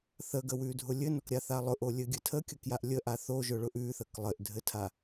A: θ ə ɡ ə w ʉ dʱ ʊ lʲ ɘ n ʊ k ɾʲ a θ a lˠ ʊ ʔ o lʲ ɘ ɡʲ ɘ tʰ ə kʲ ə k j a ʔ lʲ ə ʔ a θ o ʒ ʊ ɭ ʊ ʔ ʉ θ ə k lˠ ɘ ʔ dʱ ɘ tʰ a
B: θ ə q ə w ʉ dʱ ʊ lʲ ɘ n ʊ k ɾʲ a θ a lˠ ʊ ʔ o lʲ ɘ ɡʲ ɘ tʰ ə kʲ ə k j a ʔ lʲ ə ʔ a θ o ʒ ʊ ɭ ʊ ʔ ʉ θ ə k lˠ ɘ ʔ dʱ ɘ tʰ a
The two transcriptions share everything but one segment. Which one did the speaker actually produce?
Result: A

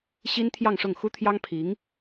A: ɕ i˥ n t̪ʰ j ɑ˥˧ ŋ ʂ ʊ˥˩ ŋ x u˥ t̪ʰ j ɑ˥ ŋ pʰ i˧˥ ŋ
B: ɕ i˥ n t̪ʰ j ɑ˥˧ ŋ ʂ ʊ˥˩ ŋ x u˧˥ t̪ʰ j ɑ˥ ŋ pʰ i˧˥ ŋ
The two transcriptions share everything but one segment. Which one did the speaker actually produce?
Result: A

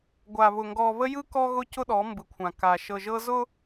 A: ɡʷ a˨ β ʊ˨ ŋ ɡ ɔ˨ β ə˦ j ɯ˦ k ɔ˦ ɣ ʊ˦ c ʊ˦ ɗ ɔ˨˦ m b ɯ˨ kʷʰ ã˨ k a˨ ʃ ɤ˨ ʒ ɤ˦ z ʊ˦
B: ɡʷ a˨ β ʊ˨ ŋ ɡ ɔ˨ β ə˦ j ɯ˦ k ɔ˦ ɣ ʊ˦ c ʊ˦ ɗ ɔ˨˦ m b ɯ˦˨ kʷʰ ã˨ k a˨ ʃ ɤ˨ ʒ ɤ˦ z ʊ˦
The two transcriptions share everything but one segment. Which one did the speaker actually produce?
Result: A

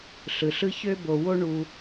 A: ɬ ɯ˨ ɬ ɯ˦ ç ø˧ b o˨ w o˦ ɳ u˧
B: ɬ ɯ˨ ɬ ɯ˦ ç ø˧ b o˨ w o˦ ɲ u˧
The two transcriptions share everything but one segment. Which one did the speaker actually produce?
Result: A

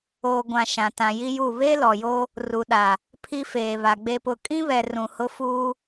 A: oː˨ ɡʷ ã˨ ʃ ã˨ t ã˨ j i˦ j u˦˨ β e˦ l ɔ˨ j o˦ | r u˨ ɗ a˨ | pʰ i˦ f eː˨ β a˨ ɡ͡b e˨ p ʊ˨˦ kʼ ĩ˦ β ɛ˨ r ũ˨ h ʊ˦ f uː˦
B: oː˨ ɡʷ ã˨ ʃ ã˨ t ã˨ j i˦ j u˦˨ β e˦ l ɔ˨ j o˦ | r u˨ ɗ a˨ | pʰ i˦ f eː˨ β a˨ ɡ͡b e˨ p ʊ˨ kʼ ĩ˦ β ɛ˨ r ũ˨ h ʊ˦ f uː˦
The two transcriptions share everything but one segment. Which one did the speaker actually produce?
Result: B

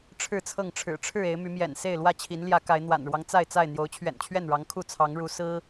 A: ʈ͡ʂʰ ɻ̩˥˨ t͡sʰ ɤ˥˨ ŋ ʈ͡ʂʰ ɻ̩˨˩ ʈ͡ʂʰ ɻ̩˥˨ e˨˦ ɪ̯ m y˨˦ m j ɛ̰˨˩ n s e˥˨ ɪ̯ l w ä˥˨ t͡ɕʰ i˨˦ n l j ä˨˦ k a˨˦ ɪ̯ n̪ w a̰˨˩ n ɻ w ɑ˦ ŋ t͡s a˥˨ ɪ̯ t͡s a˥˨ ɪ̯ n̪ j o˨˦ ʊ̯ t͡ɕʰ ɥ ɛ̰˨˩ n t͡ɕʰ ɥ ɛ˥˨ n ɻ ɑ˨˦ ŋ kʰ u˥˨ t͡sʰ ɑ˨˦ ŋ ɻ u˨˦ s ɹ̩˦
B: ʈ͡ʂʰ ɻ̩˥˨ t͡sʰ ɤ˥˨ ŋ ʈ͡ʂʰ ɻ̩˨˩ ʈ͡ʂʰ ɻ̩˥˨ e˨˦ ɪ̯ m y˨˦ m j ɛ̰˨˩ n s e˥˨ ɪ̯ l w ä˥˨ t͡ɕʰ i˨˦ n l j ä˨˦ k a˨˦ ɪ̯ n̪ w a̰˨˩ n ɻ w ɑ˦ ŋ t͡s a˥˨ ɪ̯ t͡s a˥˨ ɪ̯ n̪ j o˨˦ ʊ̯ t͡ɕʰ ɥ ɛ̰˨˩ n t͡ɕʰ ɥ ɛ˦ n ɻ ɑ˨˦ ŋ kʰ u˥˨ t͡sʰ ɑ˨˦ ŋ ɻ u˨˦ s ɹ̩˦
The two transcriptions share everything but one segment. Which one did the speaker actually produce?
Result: A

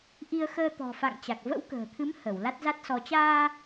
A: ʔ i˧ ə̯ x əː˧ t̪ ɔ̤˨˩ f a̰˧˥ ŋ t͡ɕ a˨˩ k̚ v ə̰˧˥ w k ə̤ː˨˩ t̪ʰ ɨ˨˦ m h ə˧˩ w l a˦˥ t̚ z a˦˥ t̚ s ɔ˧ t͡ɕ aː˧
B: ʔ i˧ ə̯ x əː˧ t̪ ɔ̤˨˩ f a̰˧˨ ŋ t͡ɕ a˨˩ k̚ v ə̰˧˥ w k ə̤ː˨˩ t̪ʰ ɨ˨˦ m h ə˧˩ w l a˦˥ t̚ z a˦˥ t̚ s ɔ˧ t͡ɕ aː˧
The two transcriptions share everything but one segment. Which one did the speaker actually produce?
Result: B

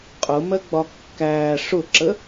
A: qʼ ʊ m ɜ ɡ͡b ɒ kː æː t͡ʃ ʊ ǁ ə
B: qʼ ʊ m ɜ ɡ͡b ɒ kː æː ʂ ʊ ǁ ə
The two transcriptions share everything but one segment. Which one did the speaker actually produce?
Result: B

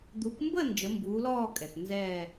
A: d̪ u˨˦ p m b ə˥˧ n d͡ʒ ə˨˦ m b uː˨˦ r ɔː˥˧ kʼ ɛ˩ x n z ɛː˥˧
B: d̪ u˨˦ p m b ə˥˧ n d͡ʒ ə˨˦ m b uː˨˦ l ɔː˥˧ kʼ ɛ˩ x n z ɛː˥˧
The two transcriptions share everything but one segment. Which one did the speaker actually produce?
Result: B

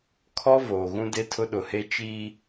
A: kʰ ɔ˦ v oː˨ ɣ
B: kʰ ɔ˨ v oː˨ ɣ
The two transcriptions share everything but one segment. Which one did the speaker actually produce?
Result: A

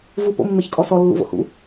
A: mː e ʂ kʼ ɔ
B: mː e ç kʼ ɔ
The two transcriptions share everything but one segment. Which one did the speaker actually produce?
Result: B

